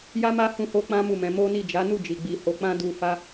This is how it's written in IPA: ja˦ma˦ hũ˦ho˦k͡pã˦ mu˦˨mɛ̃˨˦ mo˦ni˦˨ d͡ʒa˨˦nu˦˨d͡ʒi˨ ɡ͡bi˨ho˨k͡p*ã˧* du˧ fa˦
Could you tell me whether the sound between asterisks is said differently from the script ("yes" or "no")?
no